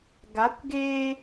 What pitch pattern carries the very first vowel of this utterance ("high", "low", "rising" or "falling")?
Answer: rising